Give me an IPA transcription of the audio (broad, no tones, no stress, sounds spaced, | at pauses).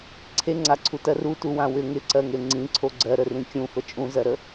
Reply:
ǀʰ e ŋ͡ǀ a ǀʰ u t ɜ r u t u w ã w ʏ ŋ ɪ ǀ ɜ ŋ e ŋ͡ǀ ĩ ǀʰ o ɡ͡ǀ ɜ ɾ ə r ĩ kʲ ũ f ə t͡ʃʼ ũ z ɜ ɾ ə